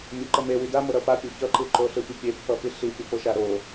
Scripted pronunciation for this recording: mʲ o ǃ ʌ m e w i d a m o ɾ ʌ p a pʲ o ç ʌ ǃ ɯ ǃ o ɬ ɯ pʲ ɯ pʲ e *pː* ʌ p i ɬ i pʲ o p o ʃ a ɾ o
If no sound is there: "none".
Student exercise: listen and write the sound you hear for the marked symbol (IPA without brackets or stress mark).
pː